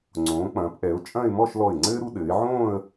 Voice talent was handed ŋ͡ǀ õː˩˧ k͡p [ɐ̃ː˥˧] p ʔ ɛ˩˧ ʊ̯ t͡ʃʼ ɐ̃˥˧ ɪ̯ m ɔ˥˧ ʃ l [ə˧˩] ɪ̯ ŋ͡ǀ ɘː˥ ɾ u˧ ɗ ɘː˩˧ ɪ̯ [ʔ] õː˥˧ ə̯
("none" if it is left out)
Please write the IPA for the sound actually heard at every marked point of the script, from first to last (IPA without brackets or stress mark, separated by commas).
ɐ̃ː˩˧, ɔ˧˩, ʕ